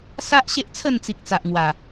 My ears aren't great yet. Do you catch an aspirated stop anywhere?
yes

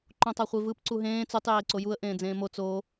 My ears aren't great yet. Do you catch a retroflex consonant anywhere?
no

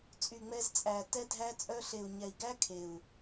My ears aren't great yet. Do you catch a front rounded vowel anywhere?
yes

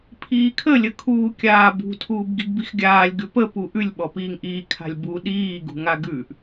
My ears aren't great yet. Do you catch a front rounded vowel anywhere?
no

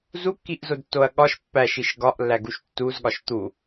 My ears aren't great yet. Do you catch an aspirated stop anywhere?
no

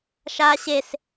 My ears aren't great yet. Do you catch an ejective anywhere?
no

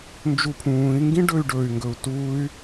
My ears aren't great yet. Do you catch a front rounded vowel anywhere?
yes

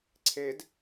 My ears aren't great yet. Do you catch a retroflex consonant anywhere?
no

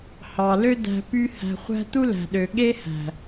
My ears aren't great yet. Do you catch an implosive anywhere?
yes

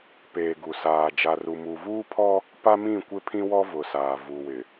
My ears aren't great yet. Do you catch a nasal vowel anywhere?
yes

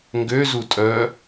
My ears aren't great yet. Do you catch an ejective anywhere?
yes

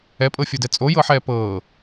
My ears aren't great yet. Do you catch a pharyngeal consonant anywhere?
yes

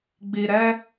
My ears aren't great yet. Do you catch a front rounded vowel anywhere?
no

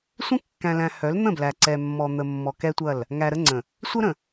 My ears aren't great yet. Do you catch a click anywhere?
yes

